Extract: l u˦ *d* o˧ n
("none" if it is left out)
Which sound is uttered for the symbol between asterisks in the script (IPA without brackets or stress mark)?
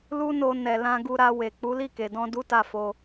n